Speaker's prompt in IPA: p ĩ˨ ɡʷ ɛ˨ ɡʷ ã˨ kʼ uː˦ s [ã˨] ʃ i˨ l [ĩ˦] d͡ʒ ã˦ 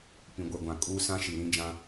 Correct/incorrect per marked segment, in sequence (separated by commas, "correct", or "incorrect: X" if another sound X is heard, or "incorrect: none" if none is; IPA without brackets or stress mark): incorrect: ã˦, correct